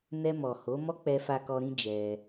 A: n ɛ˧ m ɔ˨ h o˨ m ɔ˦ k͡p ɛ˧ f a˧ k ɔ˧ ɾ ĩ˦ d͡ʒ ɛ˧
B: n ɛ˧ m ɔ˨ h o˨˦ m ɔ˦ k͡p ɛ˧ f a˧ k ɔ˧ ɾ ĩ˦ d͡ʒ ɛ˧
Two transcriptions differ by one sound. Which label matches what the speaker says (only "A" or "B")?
B